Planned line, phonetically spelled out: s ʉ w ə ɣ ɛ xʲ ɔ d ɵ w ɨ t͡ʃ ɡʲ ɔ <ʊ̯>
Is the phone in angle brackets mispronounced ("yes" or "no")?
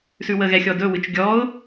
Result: no